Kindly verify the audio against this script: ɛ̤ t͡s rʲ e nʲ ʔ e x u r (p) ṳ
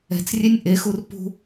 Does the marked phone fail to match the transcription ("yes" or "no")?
no